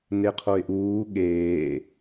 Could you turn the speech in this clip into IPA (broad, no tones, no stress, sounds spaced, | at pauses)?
n e qʰ o ɪ̯ ʔ uː ɠ eː